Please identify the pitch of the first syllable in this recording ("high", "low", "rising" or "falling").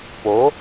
rising